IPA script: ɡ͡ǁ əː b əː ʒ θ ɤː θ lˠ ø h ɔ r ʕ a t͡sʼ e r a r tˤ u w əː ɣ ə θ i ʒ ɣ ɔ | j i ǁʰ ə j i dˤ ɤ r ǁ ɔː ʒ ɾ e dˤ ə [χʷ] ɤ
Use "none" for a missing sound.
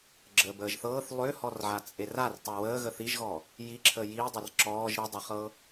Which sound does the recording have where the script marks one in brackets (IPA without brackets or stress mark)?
χ